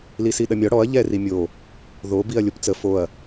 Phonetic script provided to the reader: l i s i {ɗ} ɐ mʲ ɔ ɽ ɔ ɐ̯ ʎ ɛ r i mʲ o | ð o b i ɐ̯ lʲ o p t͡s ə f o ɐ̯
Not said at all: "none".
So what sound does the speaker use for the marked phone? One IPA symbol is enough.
ɗ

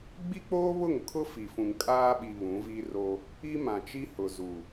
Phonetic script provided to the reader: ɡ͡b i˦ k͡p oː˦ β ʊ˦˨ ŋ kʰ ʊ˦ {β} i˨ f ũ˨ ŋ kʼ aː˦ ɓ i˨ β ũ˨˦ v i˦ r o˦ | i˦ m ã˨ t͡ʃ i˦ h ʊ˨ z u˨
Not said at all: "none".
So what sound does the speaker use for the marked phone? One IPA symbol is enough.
f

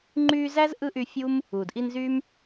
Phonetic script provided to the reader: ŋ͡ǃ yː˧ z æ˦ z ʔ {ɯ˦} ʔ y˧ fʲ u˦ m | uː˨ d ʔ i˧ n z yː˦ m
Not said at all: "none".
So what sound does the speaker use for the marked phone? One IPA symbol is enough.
ɯ˦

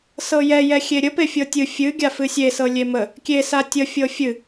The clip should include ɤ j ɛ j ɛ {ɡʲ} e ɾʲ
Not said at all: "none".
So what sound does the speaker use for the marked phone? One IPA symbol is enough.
xʲ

